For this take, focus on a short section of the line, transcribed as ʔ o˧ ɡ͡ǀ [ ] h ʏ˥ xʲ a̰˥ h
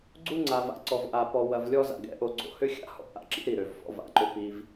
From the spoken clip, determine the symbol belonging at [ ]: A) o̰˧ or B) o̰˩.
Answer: A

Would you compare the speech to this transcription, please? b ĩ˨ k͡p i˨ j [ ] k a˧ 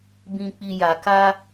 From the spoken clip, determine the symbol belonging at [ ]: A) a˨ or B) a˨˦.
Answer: A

